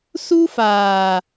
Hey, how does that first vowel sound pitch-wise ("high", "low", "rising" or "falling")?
high